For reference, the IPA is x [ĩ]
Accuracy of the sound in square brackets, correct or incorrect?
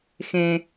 incorrect